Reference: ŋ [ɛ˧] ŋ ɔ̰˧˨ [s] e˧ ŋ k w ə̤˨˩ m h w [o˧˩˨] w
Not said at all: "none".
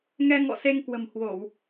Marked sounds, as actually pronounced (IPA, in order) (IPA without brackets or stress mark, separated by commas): ɛ˧, s, o˧˩˨